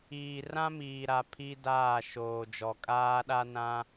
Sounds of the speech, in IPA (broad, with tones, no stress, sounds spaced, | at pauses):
iː˨ r ã˦ m iː˨ ɾ a˨ pʰ i˦ d aː˦˨ ʃ oː˨ d͡ʒ ɔ˨ kʼ aː˦ ɗ a˦ n ã˦